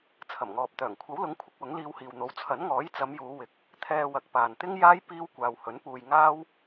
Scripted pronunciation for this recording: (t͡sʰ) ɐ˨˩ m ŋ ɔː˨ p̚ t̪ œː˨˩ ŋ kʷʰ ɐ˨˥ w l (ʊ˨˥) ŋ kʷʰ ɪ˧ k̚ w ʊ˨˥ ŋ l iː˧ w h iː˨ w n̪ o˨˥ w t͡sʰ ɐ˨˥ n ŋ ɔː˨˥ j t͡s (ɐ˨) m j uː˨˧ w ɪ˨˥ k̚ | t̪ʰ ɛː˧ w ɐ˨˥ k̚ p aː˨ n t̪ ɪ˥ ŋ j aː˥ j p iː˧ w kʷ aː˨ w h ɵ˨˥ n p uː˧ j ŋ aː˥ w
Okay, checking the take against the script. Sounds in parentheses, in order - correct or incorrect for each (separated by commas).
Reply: correct, correct, incorrect